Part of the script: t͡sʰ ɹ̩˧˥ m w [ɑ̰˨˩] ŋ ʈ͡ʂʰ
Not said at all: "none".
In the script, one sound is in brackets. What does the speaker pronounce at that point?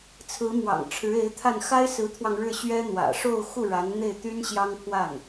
ɑ̰˨˩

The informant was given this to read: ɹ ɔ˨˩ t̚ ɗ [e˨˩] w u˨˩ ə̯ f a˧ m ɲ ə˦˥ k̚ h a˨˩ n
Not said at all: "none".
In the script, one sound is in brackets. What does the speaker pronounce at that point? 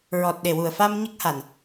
e˨˩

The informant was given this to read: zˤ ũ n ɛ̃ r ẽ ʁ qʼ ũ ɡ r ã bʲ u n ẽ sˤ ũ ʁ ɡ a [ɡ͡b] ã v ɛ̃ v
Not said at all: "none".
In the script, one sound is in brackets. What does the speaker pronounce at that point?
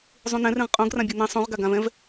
ɡ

